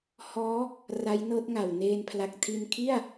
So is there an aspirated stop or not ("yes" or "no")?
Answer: yes